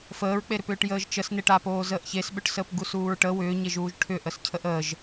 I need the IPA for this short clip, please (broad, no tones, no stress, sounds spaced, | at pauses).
f əː ɹ k͡p e ɾ ʏ p ʏː ʈ j əː ʒ t͡ʃ ə s n e ʈ a p oː z əː ʔ ç e s ɓ ʏ ʈ s əː p ɡ u s uː ɹ ʈ ə w ʏː ɲ e ʒ uː ʒ ʈʰ ʏ ʔ ə s cʰ ə ʔ əː ʒ